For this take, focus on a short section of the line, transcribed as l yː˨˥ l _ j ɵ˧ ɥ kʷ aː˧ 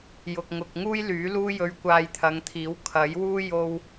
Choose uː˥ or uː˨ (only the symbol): uː˥